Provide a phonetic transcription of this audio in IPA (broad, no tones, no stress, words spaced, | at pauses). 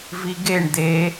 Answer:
viɡeɳ d̪e